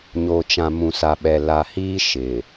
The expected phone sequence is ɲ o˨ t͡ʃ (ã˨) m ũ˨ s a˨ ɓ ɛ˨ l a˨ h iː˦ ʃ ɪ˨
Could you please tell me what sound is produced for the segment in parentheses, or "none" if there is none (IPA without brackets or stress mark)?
ã˨